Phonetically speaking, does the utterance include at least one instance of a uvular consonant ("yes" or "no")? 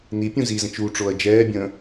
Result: no